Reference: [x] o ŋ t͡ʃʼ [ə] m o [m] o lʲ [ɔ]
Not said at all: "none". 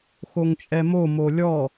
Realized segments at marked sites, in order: x, ɛ, m, ɔ

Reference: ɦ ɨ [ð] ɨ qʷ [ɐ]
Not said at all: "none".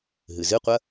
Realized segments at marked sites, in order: z, ɐ

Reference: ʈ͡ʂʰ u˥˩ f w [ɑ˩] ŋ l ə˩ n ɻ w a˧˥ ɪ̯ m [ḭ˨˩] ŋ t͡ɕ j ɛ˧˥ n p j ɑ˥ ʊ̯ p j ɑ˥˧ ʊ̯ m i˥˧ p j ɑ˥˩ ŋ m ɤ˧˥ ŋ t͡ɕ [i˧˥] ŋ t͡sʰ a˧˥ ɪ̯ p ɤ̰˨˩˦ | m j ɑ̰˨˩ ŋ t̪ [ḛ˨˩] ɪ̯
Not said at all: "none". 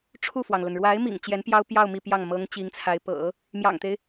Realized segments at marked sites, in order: ɑ˩, ḭ˨˩, i˧˥, e˦

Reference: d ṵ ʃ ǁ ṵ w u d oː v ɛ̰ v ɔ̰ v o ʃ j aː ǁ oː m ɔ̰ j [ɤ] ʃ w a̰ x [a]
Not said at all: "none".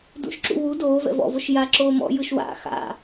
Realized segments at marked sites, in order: ɯ, a̰

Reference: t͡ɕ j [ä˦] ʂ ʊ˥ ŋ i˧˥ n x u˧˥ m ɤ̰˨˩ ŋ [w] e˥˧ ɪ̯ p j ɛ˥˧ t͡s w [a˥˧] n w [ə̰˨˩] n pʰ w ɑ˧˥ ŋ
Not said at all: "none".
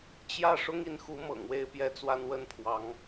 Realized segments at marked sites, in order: ä˥˩, w, a˥˧, ə˥˩

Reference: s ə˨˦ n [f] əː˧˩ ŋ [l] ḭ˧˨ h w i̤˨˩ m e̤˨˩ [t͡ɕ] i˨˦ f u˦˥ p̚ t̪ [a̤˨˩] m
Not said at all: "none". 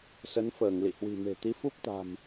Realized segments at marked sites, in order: f, l, t̪, a̤˨˩

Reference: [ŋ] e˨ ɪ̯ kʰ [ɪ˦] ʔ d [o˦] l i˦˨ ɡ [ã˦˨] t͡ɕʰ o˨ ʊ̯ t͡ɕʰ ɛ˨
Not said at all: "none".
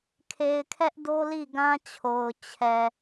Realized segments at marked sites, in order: kʰ, ɛ˦, o˦, ã˦

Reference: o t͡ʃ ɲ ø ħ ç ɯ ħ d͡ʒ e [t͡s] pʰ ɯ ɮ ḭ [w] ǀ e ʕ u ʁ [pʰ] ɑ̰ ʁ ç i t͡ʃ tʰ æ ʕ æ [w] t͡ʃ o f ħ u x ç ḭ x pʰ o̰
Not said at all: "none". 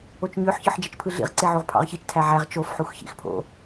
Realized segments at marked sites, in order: t͡ʃ, ʁ, pʰ, ʁ

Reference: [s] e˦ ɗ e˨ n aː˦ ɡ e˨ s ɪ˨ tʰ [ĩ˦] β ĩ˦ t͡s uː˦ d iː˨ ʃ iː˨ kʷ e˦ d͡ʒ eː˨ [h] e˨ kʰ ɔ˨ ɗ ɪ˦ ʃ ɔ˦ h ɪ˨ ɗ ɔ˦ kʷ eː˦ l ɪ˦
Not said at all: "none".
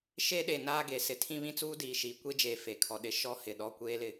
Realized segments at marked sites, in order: ʃ, ĩ˦, f

